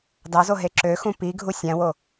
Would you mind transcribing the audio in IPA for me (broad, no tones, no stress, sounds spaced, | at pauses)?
d ɑ z o ɦ e ǁ ø x ũ p i ɡʱ u sʲ æ̃ w o